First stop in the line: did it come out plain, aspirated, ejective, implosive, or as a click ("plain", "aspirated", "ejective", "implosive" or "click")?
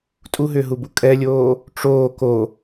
ejective